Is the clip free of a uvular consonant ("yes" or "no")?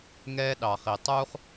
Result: no